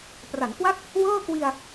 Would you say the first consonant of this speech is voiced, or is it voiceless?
voiceless